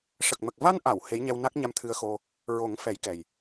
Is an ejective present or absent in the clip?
absent